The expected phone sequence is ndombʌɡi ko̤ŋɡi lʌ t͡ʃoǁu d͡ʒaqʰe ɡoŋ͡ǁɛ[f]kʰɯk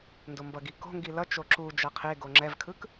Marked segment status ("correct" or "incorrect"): incorrect